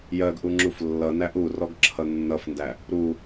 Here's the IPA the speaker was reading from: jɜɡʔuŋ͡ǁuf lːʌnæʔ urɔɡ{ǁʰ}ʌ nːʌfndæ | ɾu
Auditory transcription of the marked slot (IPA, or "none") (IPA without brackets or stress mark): ǁʰ